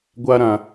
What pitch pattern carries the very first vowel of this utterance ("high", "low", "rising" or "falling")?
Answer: high